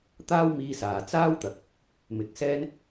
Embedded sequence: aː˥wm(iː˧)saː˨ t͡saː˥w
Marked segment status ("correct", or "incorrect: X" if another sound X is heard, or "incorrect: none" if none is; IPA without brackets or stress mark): correct